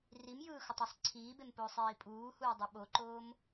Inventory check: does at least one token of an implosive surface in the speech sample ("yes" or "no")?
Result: yes